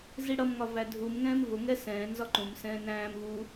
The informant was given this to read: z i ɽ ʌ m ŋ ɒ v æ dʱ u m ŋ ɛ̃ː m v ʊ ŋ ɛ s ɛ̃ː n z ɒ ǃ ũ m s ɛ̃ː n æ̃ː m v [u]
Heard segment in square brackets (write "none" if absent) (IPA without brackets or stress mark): u